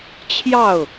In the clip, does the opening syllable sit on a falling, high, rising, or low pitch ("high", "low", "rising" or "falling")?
falling